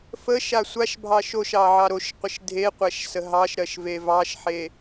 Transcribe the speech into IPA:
f ə ʃ a sʷ a ʃ bʱ ɑ ʃ o ʃ ɑ ʕ ɑ ɾ o ʃ qʷ ə ʃ dʱ e qʷ æ ʃ s ə ɦ ɑ ʃ ɾ ɜ ʃ v e v ɑ ʃ ħ e

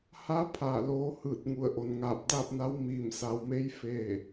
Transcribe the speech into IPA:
h a˧˥ pʰ aː˧˩ l oː˧˥ h ɯː˧˩ t̚ ŋ u˧˩ ə̯ ʔ o˩ n ŋ aː˧˩ p̚ d aː˥˨ p̚ n a˧˥ w m iː˧˩ m s a˩˧ w m e˧˥ j f e˥˨

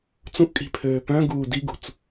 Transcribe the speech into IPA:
t͡s ũ ʔ kʼ i̤ pʰ øː p œ̃ ɡ uː d i ɡ ṳ t͡s

